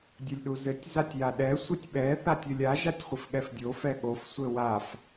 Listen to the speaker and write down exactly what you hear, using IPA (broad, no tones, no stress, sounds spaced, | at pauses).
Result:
dʲ ɘ lʲ ɗ u z ɘ tʲ z a tʲ j a ɗ ɛ sʷ ɘ tʲ ɓ ɛ θ a tʲ ɘ lʲ a ʒ a tʲ χʷ ɘ f ɠ ɛ f dʲ o f ɛ ɠ o f sʷ ɘ w a f